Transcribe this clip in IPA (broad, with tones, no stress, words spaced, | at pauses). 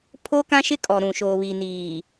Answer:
pʰo˦kã˦ʃɪ˦ kʼɔ˨ ɾũ˨ʃoː˨βi˨niː˨